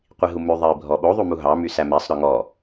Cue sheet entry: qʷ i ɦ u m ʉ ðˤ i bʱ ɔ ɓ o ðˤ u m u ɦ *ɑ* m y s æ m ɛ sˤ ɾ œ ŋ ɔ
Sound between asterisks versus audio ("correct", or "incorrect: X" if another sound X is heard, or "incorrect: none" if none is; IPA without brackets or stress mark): correct